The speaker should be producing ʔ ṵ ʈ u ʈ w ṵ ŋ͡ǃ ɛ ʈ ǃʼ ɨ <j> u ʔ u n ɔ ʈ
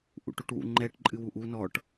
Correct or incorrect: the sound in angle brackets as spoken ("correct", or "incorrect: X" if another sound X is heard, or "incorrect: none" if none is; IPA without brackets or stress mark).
incorrect: w